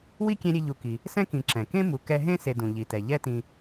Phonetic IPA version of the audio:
w i˥ kʲ ɛ̃˦ ɾʲ e˦ ʎ u˨ k i˩ | s ɛ̃˥ k ĩ˨ ǁ ɛ̃˩ k ẽ˥ m u˨ k ɛ˦ ɦ ẽ˥ s e˨ d ũ˩ ʎ i˩ t ɛ˩ ʎ ɛ˦ t ĩ˨

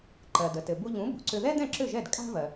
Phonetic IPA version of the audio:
ǃ ɜ˩ d ə˩ t ɘ˩ b u˧ ʎ ũ˩˥ b ṳ˩ ǀ ʏ˧ ð ɛ˥ d̪ ɛ̃˥˩ ǁ ʏ˥˩ ʒ ɛ˥˩ d kʼ a̤˥ v ɜ˩

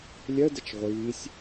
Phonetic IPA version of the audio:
lʲ ɜ d ə t͡ʃ ʁʷ iː sʲ

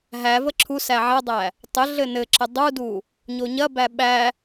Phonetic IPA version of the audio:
ɦ æ v ə ǁʰ u s æ ʕ ɐ dˤ æ | tˤ ə ɮ ɘ n ɘ ǁ ə dˤ u d u | ɲ o ɲ ɐ b æ ɓ æ

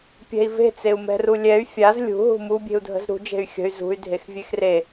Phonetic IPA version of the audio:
pʲ ɛ̤ i̯ v e̤ t͡s e u̯ m ɛ̤ r u lʲ ɛ y̯ fʲ a z lʲ ṳ ɦ ṳ m u bʲ e̤ u̯ dʱ ə̤ z ɾ ṳ d͡ʒ e̤ y̯ xʲ ə̤ y̯ z ṳ y̯ dʱ e x vʲ e x r e

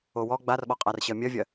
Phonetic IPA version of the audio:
o w ɔ ɡ͡b a r ɓ ɔ qʼ a r ɕ ɜ mʲ ɜ vʲ ɜ

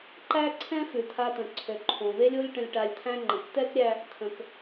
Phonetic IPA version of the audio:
ǃ æ˦ ǀʰ ɛ̃˦ f ʉ˨ t̪ʰ a˧ t̪ ə̃˨ ǀʰ ø˨ ǃʰ õ˨ v e˦ lʲ o˦ lʲ ʈ ə̃˧ lʲ ʈ a˧ lʲ t̪ʰ æ̃˦ ŋ͡ǃ ə̃˨ k t̪ ɛ˦ k ɾʲ æ˧ | t̪ʰ ə̃˨ k

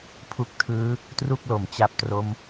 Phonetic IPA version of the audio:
pʰ u˦˥ k̚ tʰ ɯː˦˥ | t r u˥˩ k̚ l o˩˦ m t͡ɕ a˦˥ p̚ t r o˦˥ m

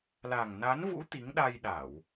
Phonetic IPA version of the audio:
l a˨˩ ŋ n a˨˦ n v ṵ˧˥ t̪ i˨˦ ŋ ɗ a˧ j ɗ a˧˩˨ w

